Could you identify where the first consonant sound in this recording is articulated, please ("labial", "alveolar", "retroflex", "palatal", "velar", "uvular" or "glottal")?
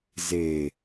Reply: alveolar